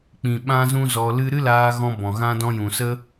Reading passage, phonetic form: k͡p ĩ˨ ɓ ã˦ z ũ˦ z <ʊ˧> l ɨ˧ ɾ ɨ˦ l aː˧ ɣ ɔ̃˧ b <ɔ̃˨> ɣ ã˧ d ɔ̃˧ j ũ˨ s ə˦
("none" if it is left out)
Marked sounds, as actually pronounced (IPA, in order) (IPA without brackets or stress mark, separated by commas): ɔ˧, ɔ̃˨